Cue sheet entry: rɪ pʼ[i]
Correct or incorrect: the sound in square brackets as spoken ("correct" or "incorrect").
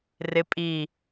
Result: correct